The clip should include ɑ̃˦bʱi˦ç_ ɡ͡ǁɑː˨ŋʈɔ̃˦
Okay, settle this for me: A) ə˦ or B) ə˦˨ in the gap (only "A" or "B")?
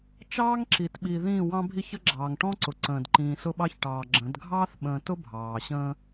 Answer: A